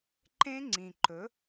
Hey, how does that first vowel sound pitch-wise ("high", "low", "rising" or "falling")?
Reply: high